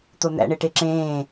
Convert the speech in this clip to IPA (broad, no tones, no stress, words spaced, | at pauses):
t̪on̪æ̰ɳe ʈeǁẽː